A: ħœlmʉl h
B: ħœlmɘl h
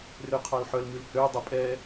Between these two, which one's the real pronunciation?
A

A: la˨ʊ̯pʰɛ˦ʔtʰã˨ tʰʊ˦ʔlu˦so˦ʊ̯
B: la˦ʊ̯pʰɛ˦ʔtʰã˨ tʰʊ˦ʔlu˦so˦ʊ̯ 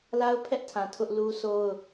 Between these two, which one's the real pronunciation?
B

